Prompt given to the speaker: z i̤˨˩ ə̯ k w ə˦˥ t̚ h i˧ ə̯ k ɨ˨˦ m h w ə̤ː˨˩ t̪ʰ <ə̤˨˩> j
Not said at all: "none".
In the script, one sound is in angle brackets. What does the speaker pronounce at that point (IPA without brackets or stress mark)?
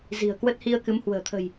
ə̤˨˩